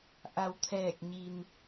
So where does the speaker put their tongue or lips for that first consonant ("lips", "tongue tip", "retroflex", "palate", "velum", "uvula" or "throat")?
throat